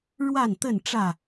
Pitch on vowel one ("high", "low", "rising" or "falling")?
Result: falling